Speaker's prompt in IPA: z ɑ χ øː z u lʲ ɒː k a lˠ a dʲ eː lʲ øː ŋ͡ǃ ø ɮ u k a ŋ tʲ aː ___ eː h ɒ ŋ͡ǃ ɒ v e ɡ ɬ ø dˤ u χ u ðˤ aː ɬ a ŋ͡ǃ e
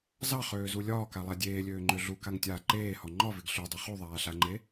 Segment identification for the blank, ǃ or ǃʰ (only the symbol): ǃ